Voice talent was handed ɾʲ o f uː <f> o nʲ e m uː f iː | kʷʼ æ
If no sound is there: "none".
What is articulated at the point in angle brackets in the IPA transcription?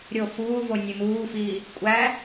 v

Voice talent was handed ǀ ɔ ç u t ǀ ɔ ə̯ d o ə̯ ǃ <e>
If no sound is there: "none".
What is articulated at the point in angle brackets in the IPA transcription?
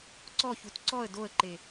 e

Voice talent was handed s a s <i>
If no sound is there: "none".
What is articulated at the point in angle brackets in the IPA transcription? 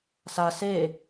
e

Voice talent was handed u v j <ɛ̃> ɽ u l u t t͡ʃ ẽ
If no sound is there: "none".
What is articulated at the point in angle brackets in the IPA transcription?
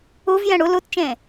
ɛ̃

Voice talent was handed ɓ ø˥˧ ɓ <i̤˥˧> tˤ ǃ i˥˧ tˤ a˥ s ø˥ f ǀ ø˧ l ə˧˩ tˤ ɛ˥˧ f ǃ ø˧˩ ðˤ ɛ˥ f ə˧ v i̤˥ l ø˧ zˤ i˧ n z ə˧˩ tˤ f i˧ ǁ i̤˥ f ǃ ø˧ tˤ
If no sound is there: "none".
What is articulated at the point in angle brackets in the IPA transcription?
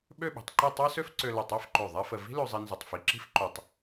i̤˩˧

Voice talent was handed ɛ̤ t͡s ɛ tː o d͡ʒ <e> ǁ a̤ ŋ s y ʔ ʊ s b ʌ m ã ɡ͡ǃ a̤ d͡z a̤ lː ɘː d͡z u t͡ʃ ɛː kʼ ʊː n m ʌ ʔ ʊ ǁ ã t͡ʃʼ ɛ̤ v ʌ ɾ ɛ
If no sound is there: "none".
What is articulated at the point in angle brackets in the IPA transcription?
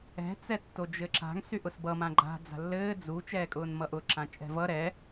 ɘ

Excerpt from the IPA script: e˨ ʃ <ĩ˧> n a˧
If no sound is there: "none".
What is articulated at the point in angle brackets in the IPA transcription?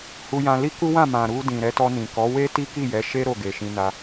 ĩ˧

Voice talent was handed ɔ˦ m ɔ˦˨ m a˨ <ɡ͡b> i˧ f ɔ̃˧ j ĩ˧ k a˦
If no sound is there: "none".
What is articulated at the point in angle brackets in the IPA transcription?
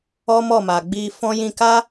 ɡ͡b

